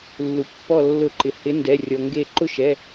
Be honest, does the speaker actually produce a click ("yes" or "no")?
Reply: yes